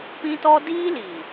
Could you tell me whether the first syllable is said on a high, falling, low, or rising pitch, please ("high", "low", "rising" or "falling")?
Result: high